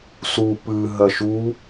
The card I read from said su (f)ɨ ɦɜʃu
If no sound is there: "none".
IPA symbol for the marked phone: p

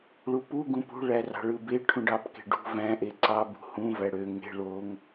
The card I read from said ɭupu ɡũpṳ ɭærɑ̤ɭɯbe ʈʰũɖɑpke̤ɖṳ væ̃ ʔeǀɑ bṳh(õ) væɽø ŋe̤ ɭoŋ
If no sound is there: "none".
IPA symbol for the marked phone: ũ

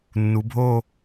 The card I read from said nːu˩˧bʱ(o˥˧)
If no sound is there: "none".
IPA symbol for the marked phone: o˥˧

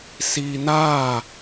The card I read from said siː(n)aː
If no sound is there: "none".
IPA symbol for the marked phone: n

